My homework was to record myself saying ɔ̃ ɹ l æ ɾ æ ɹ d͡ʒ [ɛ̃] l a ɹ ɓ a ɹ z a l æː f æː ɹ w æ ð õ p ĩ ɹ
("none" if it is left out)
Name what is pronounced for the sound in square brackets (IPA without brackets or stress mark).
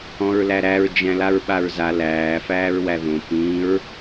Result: æ̃